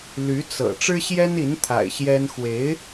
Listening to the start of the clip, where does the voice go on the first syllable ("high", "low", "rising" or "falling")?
rising